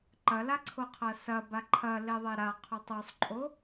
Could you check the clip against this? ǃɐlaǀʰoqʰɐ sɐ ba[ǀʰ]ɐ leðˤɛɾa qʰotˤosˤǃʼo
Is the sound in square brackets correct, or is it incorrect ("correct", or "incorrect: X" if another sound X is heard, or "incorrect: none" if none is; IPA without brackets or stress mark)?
incorrect: ǃʰ